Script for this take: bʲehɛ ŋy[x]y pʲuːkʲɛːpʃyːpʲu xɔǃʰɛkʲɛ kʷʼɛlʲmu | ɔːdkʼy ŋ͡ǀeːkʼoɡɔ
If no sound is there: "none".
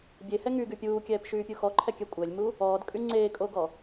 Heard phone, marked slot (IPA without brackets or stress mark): ɡ